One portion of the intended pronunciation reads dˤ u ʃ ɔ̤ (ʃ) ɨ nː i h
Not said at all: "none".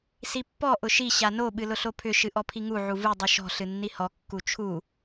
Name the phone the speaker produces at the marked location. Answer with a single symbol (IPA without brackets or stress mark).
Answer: ɬ